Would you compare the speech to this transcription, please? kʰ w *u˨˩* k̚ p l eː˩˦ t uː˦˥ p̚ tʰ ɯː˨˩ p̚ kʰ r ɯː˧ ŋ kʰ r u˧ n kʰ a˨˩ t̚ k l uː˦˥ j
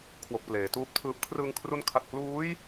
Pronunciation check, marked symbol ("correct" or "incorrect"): incorrect